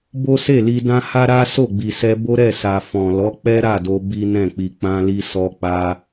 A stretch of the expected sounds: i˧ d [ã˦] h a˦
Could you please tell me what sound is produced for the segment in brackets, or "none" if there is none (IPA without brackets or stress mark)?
ã˦